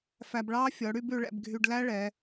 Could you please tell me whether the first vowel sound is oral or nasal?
oral